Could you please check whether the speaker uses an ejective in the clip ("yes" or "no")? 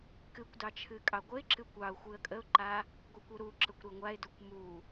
yes